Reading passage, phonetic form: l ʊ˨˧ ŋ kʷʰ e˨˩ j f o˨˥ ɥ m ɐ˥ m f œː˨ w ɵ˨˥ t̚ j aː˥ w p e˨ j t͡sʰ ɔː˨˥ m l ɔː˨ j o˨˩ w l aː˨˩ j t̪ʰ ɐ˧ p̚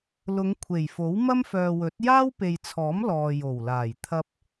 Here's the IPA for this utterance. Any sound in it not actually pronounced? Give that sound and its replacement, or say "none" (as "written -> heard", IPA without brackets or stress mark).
ɥ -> w